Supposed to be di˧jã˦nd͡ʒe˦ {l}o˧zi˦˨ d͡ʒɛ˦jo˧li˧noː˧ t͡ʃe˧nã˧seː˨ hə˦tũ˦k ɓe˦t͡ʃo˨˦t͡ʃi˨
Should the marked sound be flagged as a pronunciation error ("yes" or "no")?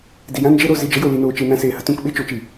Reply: yes